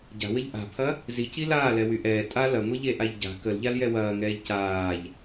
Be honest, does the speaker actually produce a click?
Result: no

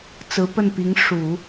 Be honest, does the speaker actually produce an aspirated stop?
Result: no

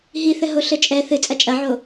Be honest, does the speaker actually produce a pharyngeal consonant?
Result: yes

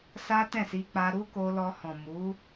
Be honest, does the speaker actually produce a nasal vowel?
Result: yes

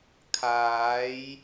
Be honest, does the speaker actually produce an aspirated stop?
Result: yes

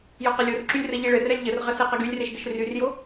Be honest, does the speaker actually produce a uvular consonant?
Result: yes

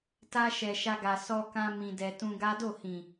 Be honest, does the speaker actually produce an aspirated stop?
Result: no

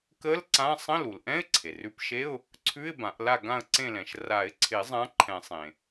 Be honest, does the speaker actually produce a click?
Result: yes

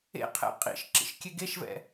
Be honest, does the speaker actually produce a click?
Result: yes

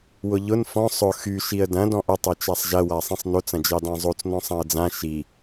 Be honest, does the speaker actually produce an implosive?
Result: no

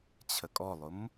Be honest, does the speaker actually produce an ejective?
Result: yes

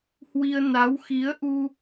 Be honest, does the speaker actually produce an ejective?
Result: no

